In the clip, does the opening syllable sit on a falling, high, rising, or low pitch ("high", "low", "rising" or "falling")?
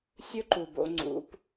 high